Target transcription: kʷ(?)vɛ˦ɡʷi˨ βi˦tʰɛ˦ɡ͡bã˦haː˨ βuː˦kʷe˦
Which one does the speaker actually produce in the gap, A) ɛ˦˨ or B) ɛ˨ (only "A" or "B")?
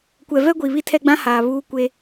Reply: B